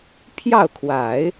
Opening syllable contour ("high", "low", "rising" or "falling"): falling